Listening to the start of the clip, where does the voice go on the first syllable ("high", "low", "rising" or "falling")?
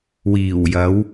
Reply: low